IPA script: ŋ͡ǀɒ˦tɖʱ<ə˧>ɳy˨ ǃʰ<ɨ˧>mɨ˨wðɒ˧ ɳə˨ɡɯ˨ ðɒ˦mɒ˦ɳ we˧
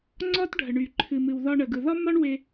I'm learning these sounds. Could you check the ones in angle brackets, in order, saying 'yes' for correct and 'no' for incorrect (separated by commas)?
no, no